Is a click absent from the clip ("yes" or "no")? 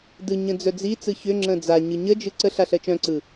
no